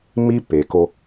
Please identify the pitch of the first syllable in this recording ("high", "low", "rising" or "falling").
high